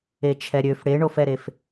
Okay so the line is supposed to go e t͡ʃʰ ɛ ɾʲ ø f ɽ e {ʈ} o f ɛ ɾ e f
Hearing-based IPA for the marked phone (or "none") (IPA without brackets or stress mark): ɳ